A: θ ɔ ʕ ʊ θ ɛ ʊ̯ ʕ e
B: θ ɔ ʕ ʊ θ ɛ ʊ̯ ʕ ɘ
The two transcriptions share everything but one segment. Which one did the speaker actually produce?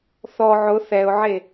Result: A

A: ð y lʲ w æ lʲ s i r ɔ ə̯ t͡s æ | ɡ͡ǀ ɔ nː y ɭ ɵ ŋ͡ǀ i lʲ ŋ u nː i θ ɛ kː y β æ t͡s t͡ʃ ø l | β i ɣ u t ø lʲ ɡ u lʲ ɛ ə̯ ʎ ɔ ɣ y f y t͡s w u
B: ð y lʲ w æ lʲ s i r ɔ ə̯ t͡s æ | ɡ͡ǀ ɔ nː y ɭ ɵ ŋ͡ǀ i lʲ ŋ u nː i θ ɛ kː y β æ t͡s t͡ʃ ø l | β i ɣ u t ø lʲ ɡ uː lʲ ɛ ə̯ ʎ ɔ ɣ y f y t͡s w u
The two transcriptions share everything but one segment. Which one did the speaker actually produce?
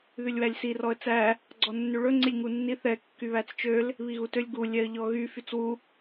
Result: A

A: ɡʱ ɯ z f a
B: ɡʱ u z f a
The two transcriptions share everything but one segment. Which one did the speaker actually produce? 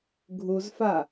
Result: B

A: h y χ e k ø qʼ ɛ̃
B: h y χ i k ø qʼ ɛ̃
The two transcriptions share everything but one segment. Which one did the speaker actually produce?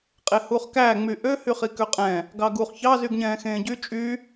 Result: B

